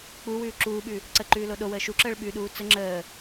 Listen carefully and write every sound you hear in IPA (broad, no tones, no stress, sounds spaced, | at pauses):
k͡p u w ʉː ǁ uː ɓ ʉ | ǀ ə ǃ ʉː l o ɗ o w əː ʃ u ǁ əː ɭ ɓ ʉ ɗ uː t͡s ə ŋ͡ǁ əː